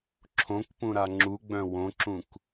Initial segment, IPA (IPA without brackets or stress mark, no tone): ǁʰ